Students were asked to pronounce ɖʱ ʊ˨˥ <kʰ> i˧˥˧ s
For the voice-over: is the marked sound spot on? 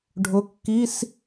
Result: no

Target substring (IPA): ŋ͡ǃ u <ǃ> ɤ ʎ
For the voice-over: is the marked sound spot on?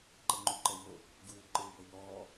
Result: yes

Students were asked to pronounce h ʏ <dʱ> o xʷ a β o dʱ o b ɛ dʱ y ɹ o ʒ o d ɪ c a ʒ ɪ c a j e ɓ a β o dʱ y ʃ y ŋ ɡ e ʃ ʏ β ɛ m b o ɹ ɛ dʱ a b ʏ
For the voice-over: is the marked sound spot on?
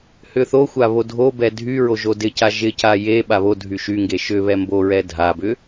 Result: no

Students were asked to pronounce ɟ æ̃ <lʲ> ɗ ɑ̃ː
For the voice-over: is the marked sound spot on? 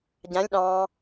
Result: yes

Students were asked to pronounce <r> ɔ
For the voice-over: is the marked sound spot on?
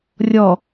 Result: no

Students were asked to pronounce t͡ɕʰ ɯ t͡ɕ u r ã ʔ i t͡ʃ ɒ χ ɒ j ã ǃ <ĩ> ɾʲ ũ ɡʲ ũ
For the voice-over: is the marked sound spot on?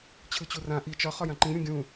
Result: yes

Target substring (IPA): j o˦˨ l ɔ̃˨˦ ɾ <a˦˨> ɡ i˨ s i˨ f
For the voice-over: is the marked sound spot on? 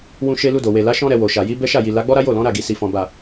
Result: yes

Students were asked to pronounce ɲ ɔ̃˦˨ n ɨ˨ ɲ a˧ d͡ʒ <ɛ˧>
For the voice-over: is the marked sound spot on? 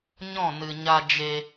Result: no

